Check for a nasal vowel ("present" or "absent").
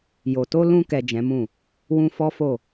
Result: present